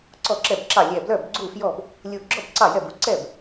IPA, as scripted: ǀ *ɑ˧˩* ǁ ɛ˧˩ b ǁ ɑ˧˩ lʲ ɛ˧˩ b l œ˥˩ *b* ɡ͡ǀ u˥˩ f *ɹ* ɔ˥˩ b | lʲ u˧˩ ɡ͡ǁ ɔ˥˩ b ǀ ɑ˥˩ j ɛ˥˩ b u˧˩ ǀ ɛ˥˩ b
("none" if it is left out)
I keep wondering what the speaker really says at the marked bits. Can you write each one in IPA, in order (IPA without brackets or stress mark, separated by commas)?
ɔ˧˩, b, j